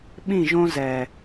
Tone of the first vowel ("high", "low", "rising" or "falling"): falling